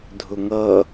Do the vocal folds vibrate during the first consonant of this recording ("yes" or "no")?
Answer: yes